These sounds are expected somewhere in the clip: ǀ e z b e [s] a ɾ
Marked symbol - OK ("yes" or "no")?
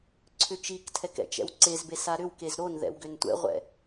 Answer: yes